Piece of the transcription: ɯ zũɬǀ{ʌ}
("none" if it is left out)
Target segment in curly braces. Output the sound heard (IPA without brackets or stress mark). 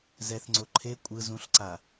a